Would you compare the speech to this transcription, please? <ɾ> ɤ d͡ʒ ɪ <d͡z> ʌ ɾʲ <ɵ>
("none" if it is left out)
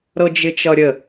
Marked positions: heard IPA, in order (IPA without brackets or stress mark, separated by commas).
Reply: ɾ, t͡ʃ, ə